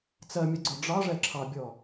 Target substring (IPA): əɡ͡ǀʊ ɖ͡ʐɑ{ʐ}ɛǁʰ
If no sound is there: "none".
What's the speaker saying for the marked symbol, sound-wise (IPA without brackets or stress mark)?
ʐ